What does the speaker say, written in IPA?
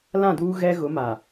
l ã˦˨ d uː˦ ɣ ɛ˦ ɣ ʊ˨˦ m a˨

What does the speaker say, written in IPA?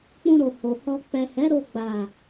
k͡p ũ˧ ɾ o˨ h o˨ h ɔ˧ k͡p ɛ˨ h ɛ˨˦ ɾ o˧ ɡ͡b a˨

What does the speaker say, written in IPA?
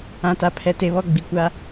ã˨ t a˨ pʰ ɛ˨ t e˨ β ɔ˦˨ ɡ͡b i˨ kʷ a˦

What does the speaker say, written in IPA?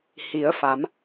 h i˩˧ ə̯ f a˩˧ m

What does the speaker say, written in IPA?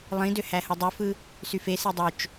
lˠ ĩ d ø h æ h ɯ dˤ y f ɯ | s y f e s i dˤ ø t͡ʃ

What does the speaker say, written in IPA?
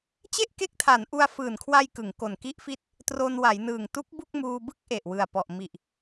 t͡ɕ e˥˩ ʔ k e˦˥ k̚ tʰ a˩˦ n ʔ u˧ a̯ f ɯː˨˩ n kʰ w a˧ j k ɯ˩˦ ŋ k o˨˩ n k i˦˥ ʔ f i˦˥ t̚ | t r o˧ n w a˩˦ j n ɯː˨˩ ŋ t u˦˥ k̚ b u˥˩ k̚ m uː˧ b ɯ˥˩ k̚ ʔ e˨˩ ʔ w ɯ˨˩ a̯ p ɔ˨˩ ʔ m i˨˩ ʔ

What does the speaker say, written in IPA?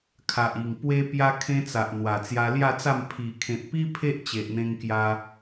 kʰ a˨ ʔ i˨˩ ŋ p w e˧ p j a˧ kʰ ẽ˧ t͡s a˨ ʔ n̪ w a˨˩ t͡s j a˧ l j a˥˧ t͡s a˥˧ m pʰ i˨˩ kʰ ẽ˨ t̚ p i˦ pʰ e˦ ʔ t͡ɕ e˨ ʔ n̪ ẽ˧ ŋ k j a˧

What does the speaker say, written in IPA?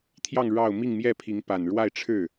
t̪ʰ j ɑ˥˧ ŋ ɻ ɑ˥˧ ʊ̯ m i˥˧ ŋ m j ɛ˥˩ pʰ i˧˥ ŋ p a˨˩ n ɻ w a˥˧ ɪ̯ ʈ͡ʂʰ ɻ̩˥˩

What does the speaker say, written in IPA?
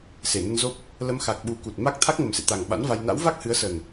s e˧˩ n ə˧ n z o˦˥ p̚ | l ə˨˦ m x a˨˩ k̚ ɓ u˨˦ k u˨˩ t̚ m a˦˥ k̚ t̪ʰ a˦˥ k̚ ŋ ə˨˩ m s ḛ˧˨ t̪ a˨˩ ŋ ɓ a̰˧˥ n v a˧ j n a̰˧˥ w v a˦˥ k̚ h ɨ˨˦ ə̯ s ə˨˩ n

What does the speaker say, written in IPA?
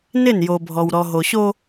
n ɪ˦˨ n j o˨ bʱ ɔ˨ w ɾ ɔ˨ ɦ o˨ ɕ o˦

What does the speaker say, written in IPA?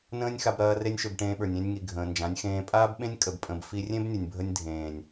n ə̃ː˦ nʲ x a˧ b ɾ ɐː˧ r e˦ nʲ ʃ ø˧ b ʈ ẽː˧ ɓ ə˞˨ nʲ ẽ˧ nʲ ŋ i˨ ɡʱ ə̃ː˨ n d͡ʒ ã˨˦ nʲ x ẽː˧ pʼ aː˦ b ɓ ẽ˦ nʲ kʼ ə˧ b pʼ ə̃˧ b f i˧ rʲ ẽ˦ b nʲ ə˨ nʲ bʱ ə˧ nʲ dʱ ẽː˨ nʲ

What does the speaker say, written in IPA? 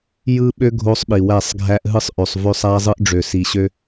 j ɯ˦ ɓ ø˦ ɡʱ o˦ sˤ ɓ i˨ w æ˦˨ sˤ ɡʱ æ˦ ʔ ɦ ɯ˦ sˤ ʔ ø˨ sˤ v ø˦ sˤ æ˦ zˤ ɯ˦ ʔ ɖ͡ʐ ø˨ s i˨ ɕ ø˦

